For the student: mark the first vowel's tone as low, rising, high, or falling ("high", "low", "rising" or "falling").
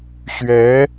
rising